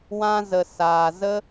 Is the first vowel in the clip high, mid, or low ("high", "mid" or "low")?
low